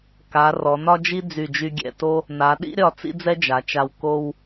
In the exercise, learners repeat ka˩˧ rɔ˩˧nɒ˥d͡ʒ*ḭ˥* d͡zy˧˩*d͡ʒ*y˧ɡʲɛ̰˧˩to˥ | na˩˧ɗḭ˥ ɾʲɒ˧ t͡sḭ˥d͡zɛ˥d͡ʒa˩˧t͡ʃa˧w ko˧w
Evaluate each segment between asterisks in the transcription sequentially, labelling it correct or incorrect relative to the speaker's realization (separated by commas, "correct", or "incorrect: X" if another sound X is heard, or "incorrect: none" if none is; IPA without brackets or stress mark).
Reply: incorrect: i˥, correct